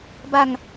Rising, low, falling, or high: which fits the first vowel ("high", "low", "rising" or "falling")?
falling